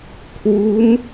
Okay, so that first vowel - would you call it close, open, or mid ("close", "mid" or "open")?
close